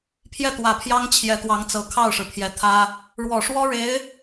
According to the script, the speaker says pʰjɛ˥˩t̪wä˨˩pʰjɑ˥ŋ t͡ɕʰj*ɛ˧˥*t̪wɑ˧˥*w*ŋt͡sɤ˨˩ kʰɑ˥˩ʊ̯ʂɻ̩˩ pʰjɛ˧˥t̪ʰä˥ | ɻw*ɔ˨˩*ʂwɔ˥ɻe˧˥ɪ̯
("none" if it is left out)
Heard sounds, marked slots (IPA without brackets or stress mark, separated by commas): ɛ˧˥, none, ɔ˨˩